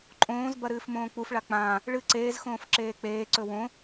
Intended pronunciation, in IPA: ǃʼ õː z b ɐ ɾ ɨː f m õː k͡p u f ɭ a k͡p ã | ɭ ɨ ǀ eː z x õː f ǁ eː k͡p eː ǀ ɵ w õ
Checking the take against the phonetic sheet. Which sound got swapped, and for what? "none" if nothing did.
none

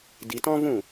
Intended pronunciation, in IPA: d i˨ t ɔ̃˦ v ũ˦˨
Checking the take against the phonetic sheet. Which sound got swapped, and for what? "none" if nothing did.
none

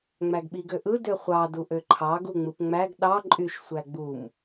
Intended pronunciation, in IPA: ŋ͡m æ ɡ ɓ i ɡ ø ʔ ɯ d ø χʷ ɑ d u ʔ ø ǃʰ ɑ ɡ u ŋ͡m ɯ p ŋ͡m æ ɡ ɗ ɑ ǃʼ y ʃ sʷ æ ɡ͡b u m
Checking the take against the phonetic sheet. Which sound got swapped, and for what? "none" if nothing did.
none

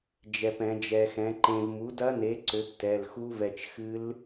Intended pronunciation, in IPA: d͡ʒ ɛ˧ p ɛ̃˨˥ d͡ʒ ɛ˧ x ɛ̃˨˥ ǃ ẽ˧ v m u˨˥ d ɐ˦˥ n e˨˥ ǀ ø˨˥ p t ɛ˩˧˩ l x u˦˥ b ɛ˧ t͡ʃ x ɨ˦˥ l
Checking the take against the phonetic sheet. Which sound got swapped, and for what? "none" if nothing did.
b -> v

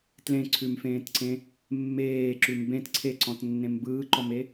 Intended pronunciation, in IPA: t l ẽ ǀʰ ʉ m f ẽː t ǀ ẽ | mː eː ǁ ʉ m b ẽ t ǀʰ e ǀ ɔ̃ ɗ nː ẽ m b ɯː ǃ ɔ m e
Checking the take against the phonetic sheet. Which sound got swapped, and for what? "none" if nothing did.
ɗ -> t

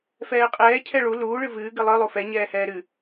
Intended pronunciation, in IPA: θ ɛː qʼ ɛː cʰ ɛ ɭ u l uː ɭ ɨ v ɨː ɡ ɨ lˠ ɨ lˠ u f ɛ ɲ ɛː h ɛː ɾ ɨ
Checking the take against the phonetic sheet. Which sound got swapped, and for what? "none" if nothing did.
θ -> f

